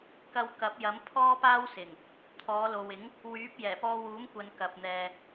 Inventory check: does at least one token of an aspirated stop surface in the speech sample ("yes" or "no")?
yes